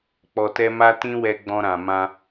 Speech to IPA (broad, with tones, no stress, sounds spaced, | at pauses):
k͡p ɔ˨ t ɛ˧ m a˦ t ĩ˦ w ɛ˧ ɡ͡b ɔ̃˧ ɾ ã˨ m ã˧